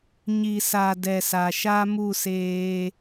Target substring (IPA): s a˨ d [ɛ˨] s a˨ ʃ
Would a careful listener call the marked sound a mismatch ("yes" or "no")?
no